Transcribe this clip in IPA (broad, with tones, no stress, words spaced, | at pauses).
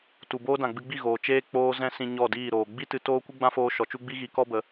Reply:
tu˨ boː˦dã˨ ɡ͡bɨ˧ɡ͡bi˦˨ɣoː˨ t͡ʃeː˦ k͡poː˧ zɛ̃˦sĩ˧ ɲɔ˦˨diː˦˨ ɾoː˨ ɡ͡bi˦tɨ˧ toː˦kʷɨ˦ɡ͡bã˦foː˧ ʃɔ˨t͡ʃu˦ ɡ͡bi˦ɣi˨˦ kɔ˦ bə˨˦